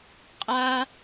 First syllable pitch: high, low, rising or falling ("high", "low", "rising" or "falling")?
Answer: high